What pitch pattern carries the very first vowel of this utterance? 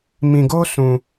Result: low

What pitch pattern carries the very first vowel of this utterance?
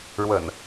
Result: low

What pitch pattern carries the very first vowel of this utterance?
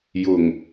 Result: low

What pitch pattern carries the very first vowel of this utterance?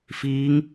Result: rising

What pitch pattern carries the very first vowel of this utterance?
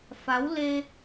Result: rising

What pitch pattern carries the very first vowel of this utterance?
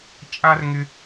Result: high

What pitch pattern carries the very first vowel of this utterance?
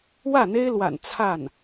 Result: falling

